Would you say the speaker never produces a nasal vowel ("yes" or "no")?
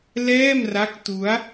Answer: yes